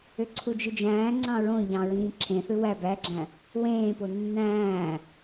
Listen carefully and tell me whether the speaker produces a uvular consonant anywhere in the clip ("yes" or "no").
no